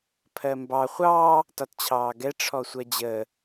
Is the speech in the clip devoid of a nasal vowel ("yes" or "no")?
yes